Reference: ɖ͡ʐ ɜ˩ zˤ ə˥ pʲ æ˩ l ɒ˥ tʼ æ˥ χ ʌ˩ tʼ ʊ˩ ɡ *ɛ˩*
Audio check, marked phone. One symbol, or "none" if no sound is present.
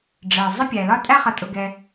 ɛ˩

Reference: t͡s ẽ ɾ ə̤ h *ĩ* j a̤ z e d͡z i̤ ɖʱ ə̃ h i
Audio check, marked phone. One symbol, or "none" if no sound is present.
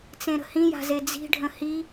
ĩ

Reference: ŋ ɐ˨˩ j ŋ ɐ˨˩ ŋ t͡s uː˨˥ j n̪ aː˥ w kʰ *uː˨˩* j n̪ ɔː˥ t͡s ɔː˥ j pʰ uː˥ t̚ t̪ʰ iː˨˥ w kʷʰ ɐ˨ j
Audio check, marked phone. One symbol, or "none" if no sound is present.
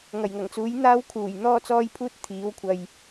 uː˨˩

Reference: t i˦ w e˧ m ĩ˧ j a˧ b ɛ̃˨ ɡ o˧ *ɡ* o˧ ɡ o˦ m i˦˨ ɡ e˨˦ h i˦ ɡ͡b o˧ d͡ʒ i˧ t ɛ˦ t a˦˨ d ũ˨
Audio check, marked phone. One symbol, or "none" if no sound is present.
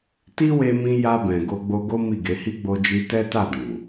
ɡ͡b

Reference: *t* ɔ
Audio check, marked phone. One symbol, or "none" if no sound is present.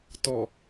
t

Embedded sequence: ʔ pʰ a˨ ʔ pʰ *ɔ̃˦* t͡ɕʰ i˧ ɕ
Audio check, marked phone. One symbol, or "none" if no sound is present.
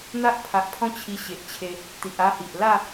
ɔ̃˦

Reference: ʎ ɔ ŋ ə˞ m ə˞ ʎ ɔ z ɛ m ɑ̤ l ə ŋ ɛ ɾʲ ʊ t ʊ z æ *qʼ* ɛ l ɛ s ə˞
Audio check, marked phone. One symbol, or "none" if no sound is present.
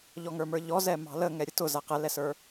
q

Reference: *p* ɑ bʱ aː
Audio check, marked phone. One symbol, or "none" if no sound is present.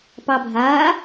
p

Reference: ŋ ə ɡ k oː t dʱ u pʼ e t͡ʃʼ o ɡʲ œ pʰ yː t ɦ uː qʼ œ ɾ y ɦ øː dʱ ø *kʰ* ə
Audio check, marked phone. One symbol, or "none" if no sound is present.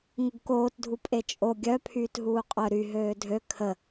kʰ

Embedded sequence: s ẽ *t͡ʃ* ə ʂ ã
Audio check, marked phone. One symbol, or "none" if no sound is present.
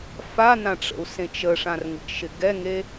t͡ʃ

